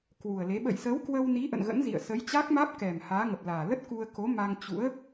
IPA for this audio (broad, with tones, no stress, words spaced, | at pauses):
kwu˨˩ə̯le˨˦ ɓə̰˧˨jsəː˨˦wkwə˧wni˨˦ ʔə̰˧˨nɣə̰˧˥nzḭ˧˨ə̯ sə˨˦j t͡ɕa˦˥k̚maː˦˥p̚kɛ˨˩m haː˨˦ŋə˨˩p̚laː˨˩ lə˦˥t̚ ku˧ə̯ ko˨˦ma˧ŋt͡ɕṵ˧˥ə̯